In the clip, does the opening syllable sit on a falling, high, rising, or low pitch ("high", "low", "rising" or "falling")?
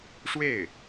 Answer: falling